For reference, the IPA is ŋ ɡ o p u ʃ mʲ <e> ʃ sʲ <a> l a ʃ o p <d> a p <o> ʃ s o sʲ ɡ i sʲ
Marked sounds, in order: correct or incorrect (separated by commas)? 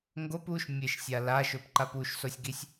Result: correct, correct, incorrect, incorrect